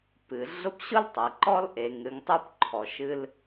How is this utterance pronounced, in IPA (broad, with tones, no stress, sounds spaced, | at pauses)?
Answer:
p ɨ˩ ɮ ʊ˦ p ɕ ʊ˥ l tˤ ɛ˩ ǃ ɔ˥ l ʔ e˨ ŋ ɾ ɨ˨ ŋ tˤ u˦ p ǃʰ ɔ˩ ʃ ɨ˦ l